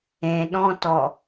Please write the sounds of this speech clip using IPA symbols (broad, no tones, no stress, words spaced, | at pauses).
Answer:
ẽɗɔ̃tɔ